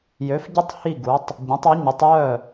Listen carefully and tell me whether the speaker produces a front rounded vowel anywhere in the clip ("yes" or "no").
yes